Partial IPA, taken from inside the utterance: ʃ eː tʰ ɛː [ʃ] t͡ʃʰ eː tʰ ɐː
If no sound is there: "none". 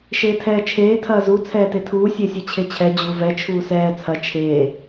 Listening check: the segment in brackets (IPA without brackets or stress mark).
none